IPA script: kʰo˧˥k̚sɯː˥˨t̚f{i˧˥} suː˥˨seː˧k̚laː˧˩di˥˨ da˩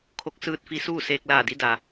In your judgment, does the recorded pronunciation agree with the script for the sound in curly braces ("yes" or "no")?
yes